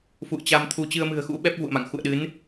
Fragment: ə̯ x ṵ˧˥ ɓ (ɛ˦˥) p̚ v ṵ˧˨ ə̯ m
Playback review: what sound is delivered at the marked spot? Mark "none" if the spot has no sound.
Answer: ɛ˦˥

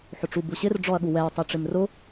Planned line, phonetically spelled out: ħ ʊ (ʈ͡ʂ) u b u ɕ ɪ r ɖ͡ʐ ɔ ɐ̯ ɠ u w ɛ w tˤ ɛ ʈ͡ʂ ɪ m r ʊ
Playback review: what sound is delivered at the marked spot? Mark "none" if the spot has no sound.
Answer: ʈ͡ʂ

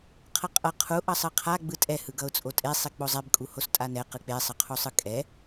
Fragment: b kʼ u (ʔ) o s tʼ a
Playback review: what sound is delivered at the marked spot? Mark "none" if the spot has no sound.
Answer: h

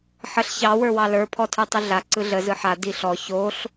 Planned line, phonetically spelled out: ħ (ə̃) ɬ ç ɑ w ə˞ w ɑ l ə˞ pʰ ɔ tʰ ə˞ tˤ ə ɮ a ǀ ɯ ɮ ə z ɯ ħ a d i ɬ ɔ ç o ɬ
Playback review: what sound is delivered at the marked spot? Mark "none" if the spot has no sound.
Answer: ə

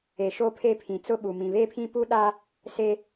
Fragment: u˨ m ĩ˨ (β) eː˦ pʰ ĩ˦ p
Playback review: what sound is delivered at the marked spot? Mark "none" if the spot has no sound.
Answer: β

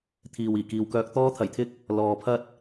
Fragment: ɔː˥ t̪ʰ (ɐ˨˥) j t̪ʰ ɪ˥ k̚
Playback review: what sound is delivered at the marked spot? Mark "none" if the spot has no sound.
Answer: ɐ˨˩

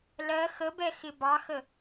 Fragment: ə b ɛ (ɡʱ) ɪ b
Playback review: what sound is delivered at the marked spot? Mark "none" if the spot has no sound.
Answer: x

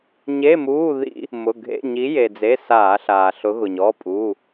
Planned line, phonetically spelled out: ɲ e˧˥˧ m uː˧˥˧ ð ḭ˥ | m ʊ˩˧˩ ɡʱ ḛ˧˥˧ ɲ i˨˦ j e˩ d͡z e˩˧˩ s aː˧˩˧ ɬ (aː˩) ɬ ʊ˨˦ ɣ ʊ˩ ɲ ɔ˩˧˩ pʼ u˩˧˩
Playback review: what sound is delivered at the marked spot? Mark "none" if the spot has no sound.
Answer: aː˩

